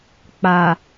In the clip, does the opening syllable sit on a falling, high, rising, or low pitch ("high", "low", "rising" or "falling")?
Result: low